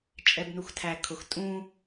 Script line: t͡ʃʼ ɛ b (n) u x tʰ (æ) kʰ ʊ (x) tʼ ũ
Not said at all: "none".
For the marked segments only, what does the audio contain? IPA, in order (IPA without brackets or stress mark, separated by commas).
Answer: n, æ, x